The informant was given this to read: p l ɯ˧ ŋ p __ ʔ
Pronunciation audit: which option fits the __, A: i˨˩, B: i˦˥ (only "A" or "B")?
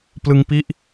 B